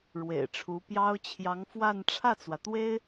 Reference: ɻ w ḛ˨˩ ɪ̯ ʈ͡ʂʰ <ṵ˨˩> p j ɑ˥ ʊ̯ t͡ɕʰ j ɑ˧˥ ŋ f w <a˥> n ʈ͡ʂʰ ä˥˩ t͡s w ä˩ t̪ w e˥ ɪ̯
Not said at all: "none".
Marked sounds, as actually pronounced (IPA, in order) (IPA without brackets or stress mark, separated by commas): u˧˥, a˥˧